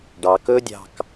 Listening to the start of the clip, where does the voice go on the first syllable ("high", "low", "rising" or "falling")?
low